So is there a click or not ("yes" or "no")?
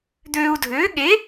no